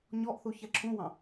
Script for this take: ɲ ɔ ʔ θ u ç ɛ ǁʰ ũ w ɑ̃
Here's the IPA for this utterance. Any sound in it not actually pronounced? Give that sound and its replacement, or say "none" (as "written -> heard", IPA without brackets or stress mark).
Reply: none